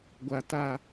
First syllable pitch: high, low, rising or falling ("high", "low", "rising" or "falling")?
low